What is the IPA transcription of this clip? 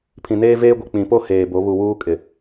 pʰ ĩ˨ n eː˦ v eː˦ ɡʷ ɪ˨ k͡p ĩ˨ p o˦ h eː˨ b o˨˦ β u˨ w uː˦ kʼ ɪ˨

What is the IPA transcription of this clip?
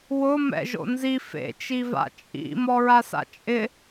w ʊ m ɛ̰ ʒ o̰ n z i f ḛ t͡ʃ i v a̰ t͡ʃʼ ḭ m ɔ ɹ a s a̰ t͡ʃʼ ɪ

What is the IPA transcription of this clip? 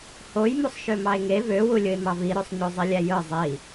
h o j m u sˤ ʃ ø m ɑ e̯ ŋ e v ø w u lʲ ɯ e̯ m ɑ v i ɾ ø sˤ ɲ o zˤ i lʲ æ j ɯ zˤ i

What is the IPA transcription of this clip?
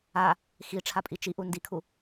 a | x i ʈ͡ʂʰ a pʼ i t͡ʃ i ʔ u n d i kʰ u

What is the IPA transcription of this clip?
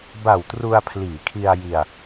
b a˨˩ w t r u˧ a̯ pʰ l iː˩˦ kʰ i˧ a̯ j i˧ a̯

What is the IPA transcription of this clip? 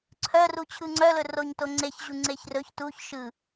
ǀʰ œ r u t͡ɕʰ ɯ ŋ͡ǀ œ l ɵ r o ɲ t o ŋ͡ǀ e ç ʑ u ŋ͡ǀ e ç r ɵ ç t u ç ʃ ɯ

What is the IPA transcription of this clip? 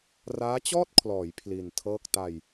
r aː˦˥ t͡ɕ ɔː˥˩ t̚ kʰ l ɔː˩˦ j pʰ l i˧ n tʰ ɤː˥˩ k̚ t a˧ j

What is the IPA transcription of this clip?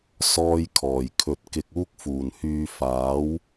s ɔː˧ j kʰ ɔː˨˩ j kʰ ɵ˨ t̚ k ɪ˨ k̚ uː˧ k̚ f uː˨˩ n h yː˨ f aː˨˥ w

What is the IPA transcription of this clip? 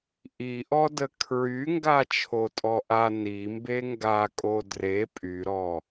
ʔ i ʔ ɔ d ə kʰ ɹ y ŋ ɡ a t͡ʃʰ o tʼ ɔ ʔ a n i m b e ŋ ɡ a kʼ o d r e pʼ y ɾ ɔ

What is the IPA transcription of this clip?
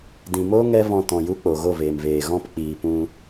d ĩ˨ m oː˦ ŋ ɛ˦ v ɔ̃˧ t ɔ̃˨ j u˦ k͡p o˨ ɣ o˦˨ v eː˨ m v eː˨ ɣ ɔ̃˦ p k͡p iː˨ p ũ˧

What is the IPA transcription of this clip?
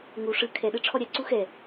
ŋ u ʂ ɯ kʰ ɛ ɗ ɯ ʈ͡ʂʰ ɔ ɾʲ a ǀ u x ɛ

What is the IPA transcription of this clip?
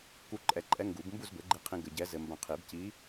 k u˧˥ ǃʼ ɛ˧˩ ǃʼ ɛ˧˥ ŋ ɡ u˨˩˦ b m b u˥˨ z b ɘ˩˥ ɡ͡ǃ i˧ qʰ ĩ˧ ɡ ɘ˧ ɟ ɛ˧˥ z ɘ˧ m b ɐ̃˧˩ qʰ i˨˩˦ b c i˧˥

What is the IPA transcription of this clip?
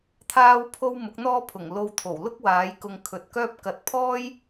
t̪ʰ aː˥ w pʰ o˥ w m ʊ˨˥ k̚ n̪ ɔː˥ pʰ ʊ˨˩ ŋ l o˧ w t̪ʰ o˨˩ w l ʊ˥ k̚ w aː˨˧ j k ʊ˧ ŋ kʰ ɵ˨˥ t̚ k œː˥ p̚ k ɐ˧ t̚ pʰ ɔː˥ j

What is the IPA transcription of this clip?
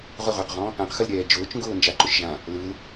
ʁ ʊ ʁ ʊː q ʁ ɔ̃ | ã q x ə l ɾʲ ɛː d͡ʒ ʊː t͡ʃ ŋ ɡ ʊː n d͡ʒ a ǃ ʊ ʃ ʒ ã | l ɯ l

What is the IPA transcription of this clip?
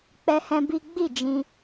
k͡p ɛ˦ h ɛ̃˦ b i˦ ɡ͡b i˦˨ d͡ʒ ĩ˧

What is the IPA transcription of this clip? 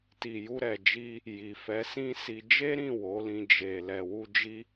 t i˨ j u˧ ɾ ɛ˨ d͡ʒ i˧ | j i˨ f ɛ˨˦ s ĩ˦ s i˧ d͡ʒ e˦ ɾ ĩ˦˨ w o˨˦ l ĩ˧ d͡ʒ e˨ l ɛ˨ w u˧ d͡ʒ i˦

